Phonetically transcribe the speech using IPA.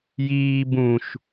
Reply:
jiː bũʃ

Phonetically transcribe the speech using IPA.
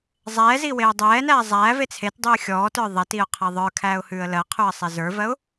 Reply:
zˤɛː ziweʊ̯dˤɛːnæː zˤæːve t͡sʰetdˤʉː xʲɔːtə˞ ðˤɛtiʊ̯ qʰɛðˤə˞kʰæːʊ̯ hʉːə̯lɜqʰʉə̯ sˤezə˞vɜʊ̯

